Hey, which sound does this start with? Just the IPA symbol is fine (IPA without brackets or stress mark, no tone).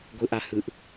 ɡʷ